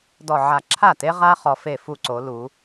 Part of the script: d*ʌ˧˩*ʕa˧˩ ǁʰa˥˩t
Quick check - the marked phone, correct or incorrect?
incorrect